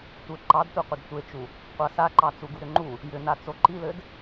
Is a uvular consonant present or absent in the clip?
present